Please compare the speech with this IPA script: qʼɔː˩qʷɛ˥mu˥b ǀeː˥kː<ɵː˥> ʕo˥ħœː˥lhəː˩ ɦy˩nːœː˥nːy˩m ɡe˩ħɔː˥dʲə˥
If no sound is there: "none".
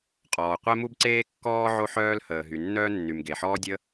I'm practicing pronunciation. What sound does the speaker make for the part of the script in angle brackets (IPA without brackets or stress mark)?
ɔː˥